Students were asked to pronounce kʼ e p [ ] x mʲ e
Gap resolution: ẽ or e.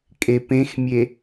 ẽ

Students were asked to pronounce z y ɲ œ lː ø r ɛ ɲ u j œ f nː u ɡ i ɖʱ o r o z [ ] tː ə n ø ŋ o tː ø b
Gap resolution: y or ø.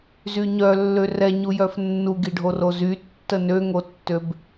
y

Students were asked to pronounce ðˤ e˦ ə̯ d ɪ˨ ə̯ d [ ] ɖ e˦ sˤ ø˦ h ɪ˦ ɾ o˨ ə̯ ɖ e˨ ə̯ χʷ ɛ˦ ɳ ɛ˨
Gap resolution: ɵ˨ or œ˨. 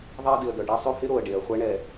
œ˨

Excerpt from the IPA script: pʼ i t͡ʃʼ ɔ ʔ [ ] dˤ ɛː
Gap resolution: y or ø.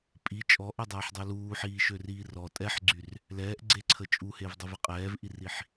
ø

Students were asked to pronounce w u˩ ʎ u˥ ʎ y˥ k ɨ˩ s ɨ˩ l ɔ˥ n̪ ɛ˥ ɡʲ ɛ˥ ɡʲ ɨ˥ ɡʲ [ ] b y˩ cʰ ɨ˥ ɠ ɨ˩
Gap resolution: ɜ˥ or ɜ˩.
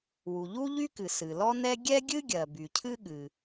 ɜ˩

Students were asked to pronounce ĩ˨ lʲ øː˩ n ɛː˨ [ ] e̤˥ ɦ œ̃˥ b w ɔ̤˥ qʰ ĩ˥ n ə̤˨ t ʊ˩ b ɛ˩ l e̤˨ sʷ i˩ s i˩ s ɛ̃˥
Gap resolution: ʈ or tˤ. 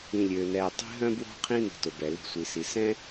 tˤ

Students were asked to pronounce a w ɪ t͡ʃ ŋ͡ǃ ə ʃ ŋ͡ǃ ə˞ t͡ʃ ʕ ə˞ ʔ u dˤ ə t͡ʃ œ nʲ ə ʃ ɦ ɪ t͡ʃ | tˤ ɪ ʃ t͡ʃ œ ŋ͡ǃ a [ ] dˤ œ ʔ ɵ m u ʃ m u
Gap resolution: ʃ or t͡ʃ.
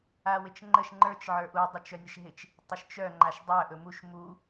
ʃ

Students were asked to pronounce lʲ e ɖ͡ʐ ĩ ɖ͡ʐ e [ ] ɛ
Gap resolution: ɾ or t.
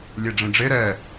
ɾ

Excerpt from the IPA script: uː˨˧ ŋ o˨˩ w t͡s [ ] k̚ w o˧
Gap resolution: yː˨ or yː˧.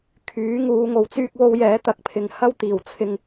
yː˧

